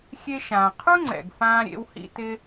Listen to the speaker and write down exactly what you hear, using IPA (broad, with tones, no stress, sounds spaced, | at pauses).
xʲ e˧ ʃ ãː˩ qʰ u˥ ŋ͡ǀ ɛ̰˩ ɡ f ãː˧ ɾʲ ḛ˧ w h ḭ˧ t ɪ˥